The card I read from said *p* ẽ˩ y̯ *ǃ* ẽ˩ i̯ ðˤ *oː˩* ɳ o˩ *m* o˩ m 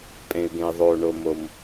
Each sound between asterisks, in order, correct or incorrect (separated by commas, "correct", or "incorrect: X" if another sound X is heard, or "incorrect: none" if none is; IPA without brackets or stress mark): incorrect: pʼ, incorrect: ɡ, correct, correct